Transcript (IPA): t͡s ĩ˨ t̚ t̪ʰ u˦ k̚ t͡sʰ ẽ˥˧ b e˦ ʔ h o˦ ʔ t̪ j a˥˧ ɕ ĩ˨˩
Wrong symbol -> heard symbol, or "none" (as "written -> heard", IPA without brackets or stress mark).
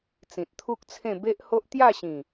none